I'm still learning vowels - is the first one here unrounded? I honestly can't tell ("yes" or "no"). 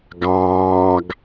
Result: yes